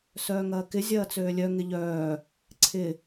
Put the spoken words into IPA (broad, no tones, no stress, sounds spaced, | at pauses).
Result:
s œː ŋ ɐː k ɪ zʲ ɐː t͡s øː lʲ œ ŋ ɪ ʎ œː | ǀʰ ɪ